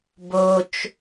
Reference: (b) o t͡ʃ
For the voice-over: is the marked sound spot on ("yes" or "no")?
yes